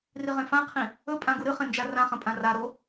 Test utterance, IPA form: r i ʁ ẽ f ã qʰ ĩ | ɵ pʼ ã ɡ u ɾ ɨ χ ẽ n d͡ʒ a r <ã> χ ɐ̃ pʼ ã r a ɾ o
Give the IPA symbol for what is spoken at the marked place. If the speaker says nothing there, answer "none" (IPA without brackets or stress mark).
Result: ã